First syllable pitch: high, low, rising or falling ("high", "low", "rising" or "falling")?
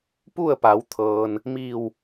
falling